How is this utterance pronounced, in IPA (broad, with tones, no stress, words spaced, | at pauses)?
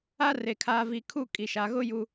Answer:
a˦re˨ kʰaː˦vi˦˨ kʰu˦˨kʼi˨ʃa˨ɣʊ˦ ju˦